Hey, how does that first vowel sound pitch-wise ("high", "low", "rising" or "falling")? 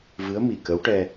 rising